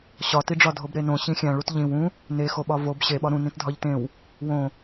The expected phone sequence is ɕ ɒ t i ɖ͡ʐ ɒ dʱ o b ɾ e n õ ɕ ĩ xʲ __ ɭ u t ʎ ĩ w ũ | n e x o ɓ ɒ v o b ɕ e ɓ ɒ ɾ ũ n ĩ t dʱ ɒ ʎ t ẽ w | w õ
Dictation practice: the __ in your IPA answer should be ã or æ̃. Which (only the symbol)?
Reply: æ̃